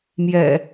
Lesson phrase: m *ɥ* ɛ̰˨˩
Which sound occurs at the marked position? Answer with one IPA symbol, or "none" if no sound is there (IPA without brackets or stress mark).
j